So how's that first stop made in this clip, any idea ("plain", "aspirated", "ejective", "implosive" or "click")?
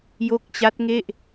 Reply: plain